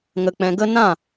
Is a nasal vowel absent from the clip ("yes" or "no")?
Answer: no